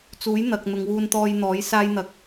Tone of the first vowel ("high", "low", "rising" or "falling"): rising